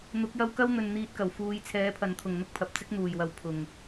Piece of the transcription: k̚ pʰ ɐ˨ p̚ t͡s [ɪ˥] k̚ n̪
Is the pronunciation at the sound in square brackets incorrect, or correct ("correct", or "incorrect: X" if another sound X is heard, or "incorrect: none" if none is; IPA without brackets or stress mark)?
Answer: correct